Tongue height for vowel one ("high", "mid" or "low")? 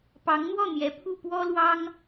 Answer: low